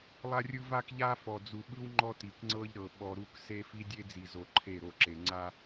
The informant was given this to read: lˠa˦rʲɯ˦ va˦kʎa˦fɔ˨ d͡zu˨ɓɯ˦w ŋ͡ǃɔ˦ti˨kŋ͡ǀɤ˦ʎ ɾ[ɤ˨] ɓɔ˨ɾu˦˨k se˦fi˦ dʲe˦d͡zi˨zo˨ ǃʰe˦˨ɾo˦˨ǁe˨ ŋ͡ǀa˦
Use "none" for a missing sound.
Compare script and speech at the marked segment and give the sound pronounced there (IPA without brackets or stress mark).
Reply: ɤ˨